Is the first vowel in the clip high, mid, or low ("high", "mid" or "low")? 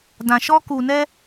low